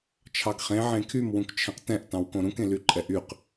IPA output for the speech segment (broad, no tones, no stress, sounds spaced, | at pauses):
t͡ʃʰ ɑ ɡ χ ẽ ʕ ẽ kʰ y m w ũ k t͡ʃʰ ɛ̃ q t ɛ̃ ʔ t ɑ̃ w k õ ɾ ũ k ẽ l y ǃʼ ɛ ʔ y q